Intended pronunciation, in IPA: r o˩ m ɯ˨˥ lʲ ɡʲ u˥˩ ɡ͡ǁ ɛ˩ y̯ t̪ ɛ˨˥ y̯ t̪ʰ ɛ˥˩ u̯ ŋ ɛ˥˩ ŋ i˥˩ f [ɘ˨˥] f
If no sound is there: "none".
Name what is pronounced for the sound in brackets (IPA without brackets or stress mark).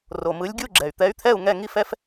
ɛ˨˥